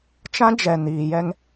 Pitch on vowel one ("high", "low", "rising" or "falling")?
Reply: high